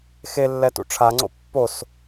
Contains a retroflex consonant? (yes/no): yes